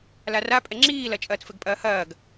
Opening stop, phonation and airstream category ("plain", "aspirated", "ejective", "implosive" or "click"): ejective